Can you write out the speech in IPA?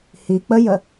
h i k͡p ə j ə

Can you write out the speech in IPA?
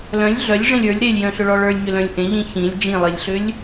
l œ̃ lʲ ɮ œ lʲ ʐ ẽ lʲ ə˞ lʲ ɾ e lʲ j œ̃ ɬ ʏ ɭ ɔ ɭ ə˞ lʲ ɲ ʏ l œ̃ lʲ ʔ ẽ ʎ ĩ ç ĩ lʲ d͡ʒ ĩ lˠ i lʲ ɬ ʏ lʲ

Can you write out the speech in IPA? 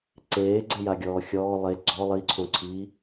ǀ eː ɡ͡ǀ e j a ɡʲ ɔː xʲ ɔː lˠ e ɡ͡ǀ ɔ lˠ i ǀʰ õ ǀʰ i

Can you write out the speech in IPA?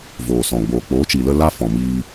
v oː˨ s ɔ̃˨ ɡ͡b oː˨ k͡p oː˨˦ t͡ʃ i˨ l ə˦ l a˦ f ɔ̃˨ m iː˧

